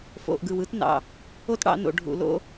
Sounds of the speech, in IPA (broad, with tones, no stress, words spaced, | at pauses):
fo̰˨ʔɡɯ˨wɯ˦tnɑ̰˨ | o˦tɽɑ̰˨˦no̰˨ ɖʱṵ˨lo̰˦